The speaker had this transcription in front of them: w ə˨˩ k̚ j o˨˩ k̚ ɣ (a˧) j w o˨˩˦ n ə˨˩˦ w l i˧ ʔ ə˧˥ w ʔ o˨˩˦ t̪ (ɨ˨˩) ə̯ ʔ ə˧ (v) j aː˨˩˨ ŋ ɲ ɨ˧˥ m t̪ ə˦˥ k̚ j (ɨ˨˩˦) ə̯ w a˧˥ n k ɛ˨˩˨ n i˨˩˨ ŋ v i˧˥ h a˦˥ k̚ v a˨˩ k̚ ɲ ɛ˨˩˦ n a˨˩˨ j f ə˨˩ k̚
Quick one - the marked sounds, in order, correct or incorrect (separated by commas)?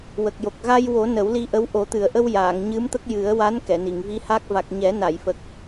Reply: correct, correct, incorrect, correct